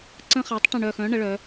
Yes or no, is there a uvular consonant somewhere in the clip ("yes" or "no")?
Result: yes